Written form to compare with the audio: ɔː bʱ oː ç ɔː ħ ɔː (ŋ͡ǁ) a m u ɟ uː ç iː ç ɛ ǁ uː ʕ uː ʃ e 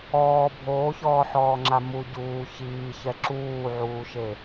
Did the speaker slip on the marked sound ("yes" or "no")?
no